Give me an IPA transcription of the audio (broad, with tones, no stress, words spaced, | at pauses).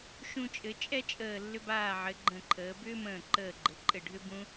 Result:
ʃũ˧t͡ʃʼɘ˩˧t͡ʃʼɛ˥t͡ʃʼəː˧˩ lːʏ˧baː˧˩ʕɘ˩˧ ɡ͡ǃə̃˧˩ǃʰəː˩˧ bʏː˥ mə̃ː˧˩ǃəː˧˩ɡ͡ǃɘ˩˧ǃʼɘ˧˩ ɖʱʏ˥bũ˥